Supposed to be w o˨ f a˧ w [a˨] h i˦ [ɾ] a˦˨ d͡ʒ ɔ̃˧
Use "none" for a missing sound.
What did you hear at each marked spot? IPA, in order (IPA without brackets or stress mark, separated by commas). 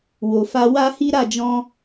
a˦, ɾ